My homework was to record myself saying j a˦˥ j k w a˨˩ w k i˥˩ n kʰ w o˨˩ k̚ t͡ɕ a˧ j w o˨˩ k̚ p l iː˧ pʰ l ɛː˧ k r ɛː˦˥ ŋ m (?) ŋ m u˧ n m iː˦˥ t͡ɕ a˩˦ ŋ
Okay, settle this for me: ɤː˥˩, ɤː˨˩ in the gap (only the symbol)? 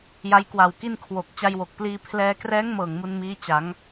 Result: ɤː˨˩